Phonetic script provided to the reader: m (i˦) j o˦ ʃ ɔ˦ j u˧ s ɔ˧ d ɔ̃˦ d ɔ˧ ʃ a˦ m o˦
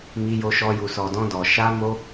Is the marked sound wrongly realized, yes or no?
no